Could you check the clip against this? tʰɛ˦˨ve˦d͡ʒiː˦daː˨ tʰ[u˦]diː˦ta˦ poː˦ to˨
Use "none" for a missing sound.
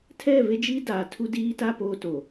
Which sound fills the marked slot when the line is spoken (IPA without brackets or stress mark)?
u˦